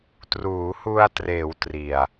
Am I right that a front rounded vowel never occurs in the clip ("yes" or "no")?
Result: yes